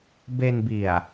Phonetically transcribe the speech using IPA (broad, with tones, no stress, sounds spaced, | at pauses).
b e˧ n b i˨˩ a̯